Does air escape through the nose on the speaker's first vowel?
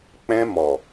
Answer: yes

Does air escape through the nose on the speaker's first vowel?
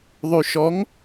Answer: no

